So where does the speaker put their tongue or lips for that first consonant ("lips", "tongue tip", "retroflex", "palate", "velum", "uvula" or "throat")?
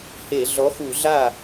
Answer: throat